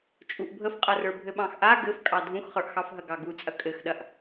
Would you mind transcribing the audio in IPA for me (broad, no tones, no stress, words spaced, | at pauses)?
t͡ʃʼuʔbʱəfqʼɐrə˞ bʱɘɓɑ̃xʔa ɡɘfkʼɑ dʱũxχə˞ʔxɑfɦɐ ɡɑɡu t͡sʼɐkʼɘxɗɐʔ